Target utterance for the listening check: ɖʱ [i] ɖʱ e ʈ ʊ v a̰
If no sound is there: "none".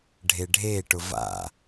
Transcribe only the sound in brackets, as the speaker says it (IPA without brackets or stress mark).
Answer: e